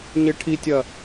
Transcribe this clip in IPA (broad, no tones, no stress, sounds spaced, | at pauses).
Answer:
ɲ e ʈʰ i tʲ ɐ